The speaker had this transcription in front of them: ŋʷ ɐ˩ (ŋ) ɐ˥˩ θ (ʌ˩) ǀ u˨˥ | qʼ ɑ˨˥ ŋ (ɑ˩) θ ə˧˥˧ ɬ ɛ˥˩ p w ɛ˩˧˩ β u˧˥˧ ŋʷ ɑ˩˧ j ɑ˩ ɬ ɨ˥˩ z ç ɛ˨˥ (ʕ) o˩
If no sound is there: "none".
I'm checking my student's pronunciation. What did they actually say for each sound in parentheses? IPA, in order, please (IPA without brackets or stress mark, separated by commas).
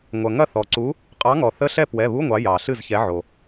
ŋ, ɔ˩, ɔ˩, ʕ